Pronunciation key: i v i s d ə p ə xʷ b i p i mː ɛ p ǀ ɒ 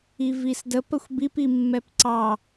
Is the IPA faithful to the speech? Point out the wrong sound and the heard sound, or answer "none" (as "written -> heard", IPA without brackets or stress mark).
ɒ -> ɑ